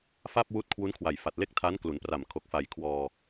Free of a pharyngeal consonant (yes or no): yes